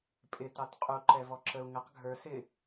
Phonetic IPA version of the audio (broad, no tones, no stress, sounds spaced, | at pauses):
pʼ ɪ t ɑ t qʼ u ǃ ɛ v ɔ ǁ ə u̯ ŋ ə q ɡʱ ə˞ s ɪ